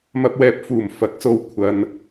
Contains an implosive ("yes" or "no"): no